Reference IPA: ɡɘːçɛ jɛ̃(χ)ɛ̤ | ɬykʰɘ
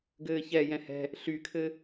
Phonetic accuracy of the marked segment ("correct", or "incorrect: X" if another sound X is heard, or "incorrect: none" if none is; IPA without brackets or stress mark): incorrect: h